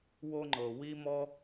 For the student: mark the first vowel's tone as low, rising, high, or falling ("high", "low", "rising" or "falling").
high